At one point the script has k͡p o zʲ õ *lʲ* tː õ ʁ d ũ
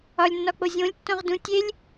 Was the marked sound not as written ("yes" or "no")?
no